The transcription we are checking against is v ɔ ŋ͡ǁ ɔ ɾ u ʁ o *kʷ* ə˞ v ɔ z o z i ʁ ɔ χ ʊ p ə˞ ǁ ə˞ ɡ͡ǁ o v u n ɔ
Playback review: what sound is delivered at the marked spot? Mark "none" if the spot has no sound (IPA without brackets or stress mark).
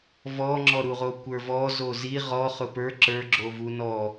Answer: kʷ